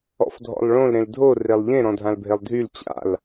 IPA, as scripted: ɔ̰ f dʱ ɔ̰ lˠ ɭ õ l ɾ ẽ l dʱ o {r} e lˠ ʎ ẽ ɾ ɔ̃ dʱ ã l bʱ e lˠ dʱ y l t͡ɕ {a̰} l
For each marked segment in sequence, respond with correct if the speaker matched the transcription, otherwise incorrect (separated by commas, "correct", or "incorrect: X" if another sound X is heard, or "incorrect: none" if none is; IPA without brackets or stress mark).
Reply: correct, correct